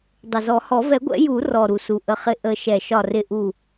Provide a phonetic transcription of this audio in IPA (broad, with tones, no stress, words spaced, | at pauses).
dˤɪ˨˩zɔ˨˩˦hɔ˨˩˦ vɛ˨˩˦ɡʷɛ̰˨˩˦ ju˨˩˦ rɔ˨˩ɾu˨˩su˨˩ ʔə˨˩χɪ˨˩ ʔə˨˩˦ʃɛ˨˩ ʃɒ˨˩rɪ˨˩ʔu˨˩